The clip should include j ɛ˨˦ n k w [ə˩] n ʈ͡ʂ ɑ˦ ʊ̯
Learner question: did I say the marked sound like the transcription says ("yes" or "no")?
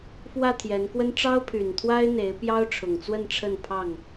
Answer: no